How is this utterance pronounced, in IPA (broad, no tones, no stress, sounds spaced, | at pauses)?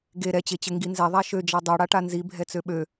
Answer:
ɡ e ɾ ɛ t͡ɕ e t͡ɕ ɘ ŋ ɡ i n z ɛ ðˤ a ʃ ø d͡ʒ a dˤ ø ɽ a ʈ a n z i bʱ ɛ t͡s ø ɓ ø